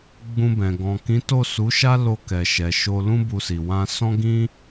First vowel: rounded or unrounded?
rounded